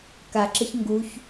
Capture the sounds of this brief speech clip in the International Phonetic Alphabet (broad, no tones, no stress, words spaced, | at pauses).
kaǁɘç ŋɡuç